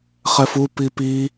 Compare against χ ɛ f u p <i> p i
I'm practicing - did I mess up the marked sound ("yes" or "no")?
no